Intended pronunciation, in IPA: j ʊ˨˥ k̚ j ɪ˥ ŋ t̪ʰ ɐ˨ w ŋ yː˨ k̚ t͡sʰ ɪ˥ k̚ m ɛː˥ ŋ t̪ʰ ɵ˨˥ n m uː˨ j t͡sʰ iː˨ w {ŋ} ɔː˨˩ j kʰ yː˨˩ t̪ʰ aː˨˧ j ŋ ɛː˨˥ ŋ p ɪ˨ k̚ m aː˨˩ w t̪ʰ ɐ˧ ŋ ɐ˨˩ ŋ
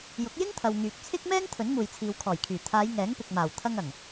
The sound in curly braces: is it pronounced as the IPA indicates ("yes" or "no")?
no